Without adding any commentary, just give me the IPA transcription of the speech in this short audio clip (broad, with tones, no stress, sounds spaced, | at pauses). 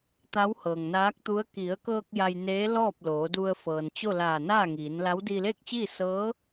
t̪ a˧˥ w h ɤː˩ ŋ n aː˧˥ k̚ t̪ u˧˥ ə̯ k i˩˧ ə̯ k ɤː˧ k̚ j a˧ j n eː˧˥ l ɔː˥˨ p̚ l oː˩˧ d u˧ ə̯ f ɤː˩ n t͡ɕ o˥˨ l aː˧˩ n aː˥˨ ŋ iː˩˧ n l a˧˥ w d iː˧ l eː˥˨ k̚ t͡ɕ iː˥˨ s ɤː˧˥